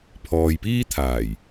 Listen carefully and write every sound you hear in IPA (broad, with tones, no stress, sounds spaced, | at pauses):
pʰ ɔː˨ j p iː˥ t̪ʰ aː˨˩ j